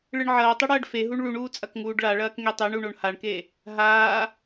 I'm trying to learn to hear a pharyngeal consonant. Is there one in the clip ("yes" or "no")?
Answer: yes